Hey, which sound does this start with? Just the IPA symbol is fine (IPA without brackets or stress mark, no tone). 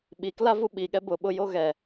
ɓ